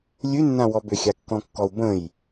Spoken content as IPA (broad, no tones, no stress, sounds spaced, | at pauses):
lʲ ʉ nː ã w ɔ b ʏ xʲ a kː ɔ̃ kː ɔ u̯ b ə̃ j